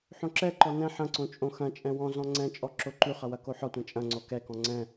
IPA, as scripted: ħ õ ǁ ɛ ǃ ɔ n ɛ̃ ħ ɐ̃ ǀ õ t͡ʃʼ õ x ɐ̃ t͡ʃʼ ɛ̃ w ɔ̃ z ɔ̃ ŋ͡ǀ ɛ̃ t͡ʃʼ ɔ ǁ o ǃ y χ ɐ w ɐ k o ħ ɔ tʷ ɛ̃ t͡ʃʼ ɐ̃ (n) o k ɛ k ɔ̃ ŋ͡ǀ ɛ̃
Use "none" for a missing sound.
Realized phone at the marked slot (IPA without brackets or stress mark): ŋ͡ǀ